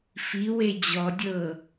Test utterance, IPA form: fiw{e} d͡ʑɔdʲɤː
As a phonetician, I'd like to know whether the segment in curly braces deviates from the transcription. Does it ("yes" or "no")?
no